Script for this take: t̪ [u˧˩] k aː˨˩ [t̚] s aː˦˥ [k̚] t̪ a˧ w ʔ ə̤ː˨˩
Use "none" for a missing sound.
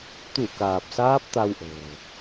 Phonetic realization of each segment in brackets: u˧˩, p̚, p̚

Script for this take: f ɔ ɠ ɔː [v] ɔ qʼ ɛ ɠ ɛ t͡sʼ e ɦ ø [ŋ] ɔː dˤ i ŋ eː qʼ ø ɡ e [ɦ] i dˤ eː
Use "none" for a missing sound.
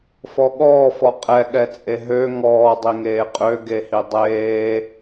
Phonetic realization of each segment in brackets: f, ŋ, h

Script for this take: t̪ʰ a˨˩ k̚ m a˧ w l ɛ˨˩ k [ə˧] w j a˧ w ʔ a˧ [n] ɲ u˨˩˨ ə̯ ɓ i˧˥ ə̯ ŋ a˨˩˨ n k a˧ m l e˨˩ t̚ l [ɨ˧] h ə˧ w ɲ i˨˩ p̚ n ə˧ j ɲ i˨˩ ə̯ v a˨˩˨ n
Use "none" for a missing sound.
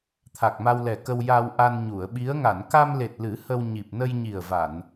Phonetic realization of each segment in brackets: ə˧, n, ɨ˨˩˦

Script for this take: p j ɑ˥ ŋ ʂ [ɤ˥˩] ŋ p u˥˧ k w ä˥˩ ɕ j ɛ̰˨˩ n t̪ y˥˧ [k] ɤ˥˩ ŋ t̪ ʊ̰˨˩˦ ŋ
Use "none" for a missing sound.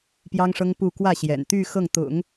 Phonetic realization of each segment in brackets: ɤ˥, x

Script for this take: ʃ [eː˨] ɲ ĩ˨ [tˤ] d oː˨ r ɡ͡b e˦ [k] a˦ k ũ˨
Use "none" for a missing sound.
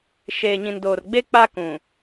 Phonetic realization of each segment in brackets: eː˨, n, k͡p

